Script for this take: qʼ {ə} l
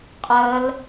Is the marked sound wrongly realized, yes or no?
no